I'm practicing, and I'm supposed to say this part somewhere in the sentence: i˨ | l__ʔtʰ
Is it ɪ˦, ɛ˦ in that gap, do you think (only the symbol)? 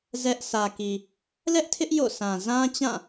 ɛ˦